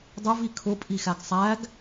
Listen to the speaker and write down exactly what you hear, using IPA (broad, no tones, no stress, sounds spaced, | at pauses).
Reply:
dˤ ʊ v i kʰ ʊ pʼ i x æ ɡ sˤ æ ɡ